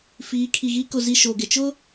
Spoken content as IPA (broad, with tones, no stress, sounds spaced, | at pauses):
f iː˨˦ kʰ i˨ ɣ i˦ k ʊ˨ z i˨ ʃ o˨ ɡ ɪ˨ t͡ʃ ʊ˦